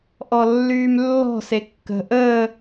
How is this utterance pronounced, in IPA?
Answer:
ʔɔlːyːmlːɔ̤ sekːə̤ ʔəː

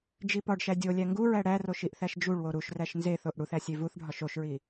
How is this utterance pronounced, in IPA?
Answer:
d͡ʒipɒɖʃæ dʲolʲæ ŋɡuɹæ ɽæroʃ iʔθæʃd͡ʒuɭwo ɾuʃræʃ nzeθoʔ ɽuθæ sʲevuθɖʱɒʃ oʃɹi

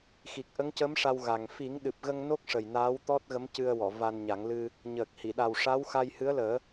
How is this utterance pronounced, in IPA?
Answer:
xi˨˩k̚ʔə˧˥ŋcə˧˥m ʂa˧wɣa˨˩ŋ fi˨˩˦ŋɗɨ˨˩p̚ɣə˧ŋ no˦˥k̚ʂə˨˩j naː˧˥wt̪ɔ˦˥t̚ɣə˧˥mcɨ˧ə̯ wɔ˨˩˨va˧nɲa˨˩˦ŋlɨ˧ | ɲəː˨˩k̚hi˨˩˨ɗa˨˩w ʂa˧˥wxa˧j hɨ˧˥ə̯ləː˨˩˦

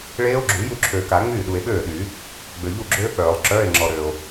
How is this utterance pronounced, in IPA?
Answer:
ɭeː˦˥o̯ɡ͡ǁu˨˩˦ ju˥˩ǁʰøː˨ka˨˩˦ ŋ͡myː˥˩ɗu˨e̯ɓøː˥˩ɗyː˨˩˦ | ɡ͡bø˨ʎu˥˩ɡ͡ǁøː˦˥k͡pœː˨˩˦lˠ ǁœː˧˥˧e̯ ŋ͡ǁɔ˨ ɾøː˨o̯

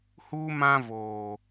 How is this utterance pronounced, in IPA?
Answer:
huː˦mã˦voː˨

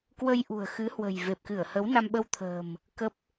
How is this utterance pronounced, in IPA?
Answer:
kwə˧jʔṳ˨˩ə̯xɨ˨˦hwə̤˨˩j ve˨˩p̚kɨ˧˩ə̯hə˨˦w na˧mɓə˧wt̪ʰə̤ː˨˩m | kə˦˥p̚

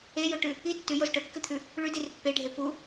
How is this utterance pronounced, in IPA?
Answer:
ejoʈʉ | i tːʉjoz ʈɵkːɨt̪ʰʉ | ɭʉdir pːeɖʱe pu

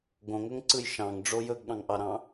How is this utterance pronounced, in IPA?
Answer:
ɡõŋɵŋǀɯj ʃɑ̃ŋɖ͡ʐo jɵɡɠɑ̃ŋʔɑɾɑ̃

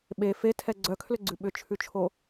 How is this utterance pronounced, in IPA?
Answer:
ɓe fetʰɛ ɡ͡ǀœkʰlʏɡ͡ǀʉ ɓʏt͡ʃʰʉt͡ʃʰo

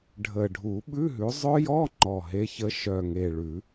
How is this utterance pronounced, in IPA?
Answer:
ɖʱə˨˩ɖʱu˨˩˦ ɓʉ˧˥˧ɦʉ˨˦ zˤœ˦˥jɔ˧˥˧ ŋ͡ǃɔ˨˩ɦe˨˦çə˨˦ ʃœ˨˩ŋe˨˩ɭʉ˨˩˦

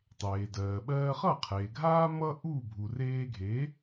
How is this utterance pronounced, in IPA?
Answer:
tˤeː˩dɜː˩ɓɜː˧χʌ˥˩ qʰeː˩ɡʱaː˥ mʌ˥ ʔu˥˩ bʱu˩reː˧ɡʱeː˩˥

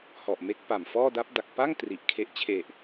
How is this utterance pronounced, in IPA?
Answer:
hɔ˨˩ʔme˦˥k̚pa˨˩m fɔː˥˩da˦˥p̚da˨˩k̚ pa˥˩ŋ tri˨˩ʔkʰe˦˥ʔ t͡ɕʰe˨˩ʔ

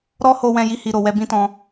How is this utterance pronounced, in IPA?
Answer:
ɾɔ˦ho˧wɛ̃˧ ji˦hi˧ ɾo˨wɛ˧ bĩ˦tɔ̃˧

